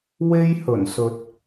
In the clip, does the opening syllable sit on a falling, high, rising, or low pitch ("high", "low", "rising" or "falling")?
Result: high